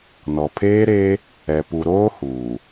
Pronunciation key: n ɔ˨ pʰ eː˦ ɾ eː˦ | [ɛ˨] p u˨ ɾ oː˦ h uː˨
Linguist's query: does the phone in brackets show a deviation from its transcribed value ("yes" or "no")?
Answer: no